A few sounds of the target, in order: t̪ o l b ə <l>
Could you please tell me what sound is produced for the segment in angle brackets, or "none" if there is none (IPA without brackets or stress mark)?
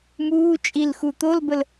l